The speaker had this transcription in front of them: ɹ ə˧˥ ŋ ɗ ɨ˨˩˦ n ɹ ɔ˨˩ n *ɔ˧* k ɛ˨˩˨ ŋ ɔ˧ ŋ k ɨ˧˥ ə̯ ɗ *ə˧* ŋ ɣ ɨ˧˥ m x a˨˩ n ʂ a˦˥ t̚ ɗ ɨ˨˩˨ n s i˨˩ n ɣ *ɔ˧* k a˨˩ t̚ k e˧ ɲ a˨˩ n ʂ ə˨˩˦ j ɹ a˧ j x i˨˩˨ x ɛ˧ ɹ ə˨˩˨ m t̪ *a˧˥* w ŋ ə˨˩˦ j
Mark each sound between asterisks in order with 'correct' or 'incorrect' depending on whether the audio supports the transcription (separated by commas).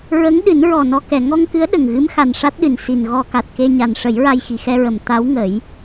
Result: correct, incorrect, correct, correct